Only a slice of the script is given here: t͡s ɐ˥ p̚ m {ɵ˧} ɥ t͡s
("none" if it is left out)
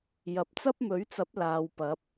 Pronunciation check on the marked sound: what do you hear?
ɵ˨˥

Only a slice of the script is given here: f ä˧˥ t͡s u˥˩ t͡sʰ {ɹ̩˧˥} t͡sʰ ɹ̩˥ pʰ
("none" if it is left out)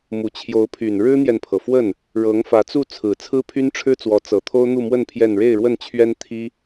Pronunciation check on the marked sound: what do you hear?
ɹ̩˨˩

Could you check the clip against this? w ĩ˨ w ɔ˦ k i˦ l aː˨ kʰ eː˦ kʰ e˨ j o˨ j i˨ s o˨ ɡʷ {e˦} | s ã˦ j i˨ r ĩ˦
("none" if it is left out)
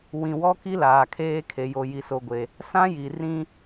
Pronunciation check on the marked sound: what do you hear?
e˨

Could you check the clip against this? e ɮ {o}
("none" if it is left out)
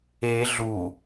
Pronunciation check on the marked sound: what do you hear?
u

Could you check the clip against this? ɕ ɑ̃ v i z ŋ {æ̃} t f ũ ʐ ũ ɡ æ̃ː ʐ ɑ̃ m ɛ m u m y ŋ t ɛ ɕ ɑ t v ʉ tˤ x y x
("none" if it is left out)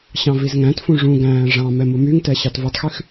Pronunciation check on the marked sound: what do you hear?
æ̃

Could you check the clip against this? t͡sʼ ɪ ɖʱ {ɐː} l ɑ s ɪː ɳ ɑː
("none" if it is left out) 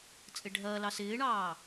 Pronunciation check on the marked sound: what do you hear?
ɐː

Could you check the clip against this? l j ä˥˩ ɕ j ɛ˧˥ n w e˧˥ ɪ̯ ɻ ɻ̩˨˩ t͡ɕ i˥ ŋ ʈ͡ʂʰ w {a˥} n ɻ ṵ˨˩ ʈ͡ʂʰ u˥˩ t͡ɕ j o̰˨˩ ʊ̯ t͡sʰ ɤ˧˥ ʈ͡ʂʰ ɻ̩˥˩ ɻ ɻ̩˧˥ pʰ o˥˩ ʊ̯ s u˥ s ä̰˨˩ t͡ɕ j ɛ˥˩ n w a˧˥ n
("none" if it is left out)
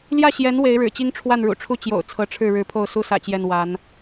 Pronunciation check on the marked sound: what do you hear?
a˥˩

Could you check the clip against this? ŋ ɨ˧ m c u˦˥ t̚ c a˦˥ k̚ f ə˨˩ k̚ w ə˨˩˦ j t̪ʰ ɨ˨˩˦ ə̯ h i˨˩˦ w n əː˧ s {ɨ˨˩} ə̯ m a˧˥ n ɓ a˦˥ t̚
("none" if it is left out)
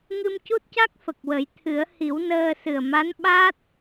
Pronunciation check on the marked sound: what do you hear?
ɨ˨˩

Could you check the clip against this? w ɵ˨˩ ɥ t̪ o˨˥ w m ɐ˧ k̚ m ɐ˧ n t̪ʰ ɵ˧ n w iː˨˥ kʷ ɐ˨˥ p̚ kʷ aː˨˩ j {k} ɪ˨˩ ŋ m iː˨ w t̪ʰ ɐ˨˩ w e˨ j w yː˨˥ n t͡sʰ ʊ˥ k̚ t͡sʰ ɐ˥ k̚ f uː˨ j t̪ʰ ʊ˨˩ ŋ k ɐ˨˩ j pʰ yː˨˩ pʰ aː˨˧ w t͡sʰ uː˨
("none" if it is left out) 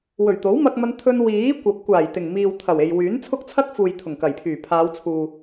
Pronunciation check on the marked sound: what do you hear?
t̪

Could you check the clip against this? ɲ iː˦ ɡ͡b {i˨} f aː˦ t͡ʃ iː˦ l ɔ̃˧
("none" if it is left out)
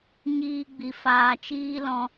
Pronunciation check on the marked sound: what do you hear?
i˧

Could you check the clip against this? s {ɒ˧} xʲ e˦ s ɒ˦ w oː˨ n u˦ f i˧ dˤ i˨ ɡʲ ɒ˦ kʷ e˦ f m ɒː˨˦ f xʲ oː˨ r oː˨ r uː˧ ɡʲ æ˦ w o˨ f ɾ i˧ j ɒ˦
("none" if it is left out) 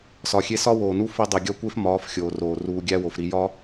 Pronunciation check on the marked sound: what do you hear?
ɒ˧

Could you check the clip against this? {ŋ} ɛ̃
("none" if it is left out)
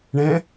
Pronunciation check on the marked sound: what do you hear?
ɳ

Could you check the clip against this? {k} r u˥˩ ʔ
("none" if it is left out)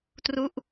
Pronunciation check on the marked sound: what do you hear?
t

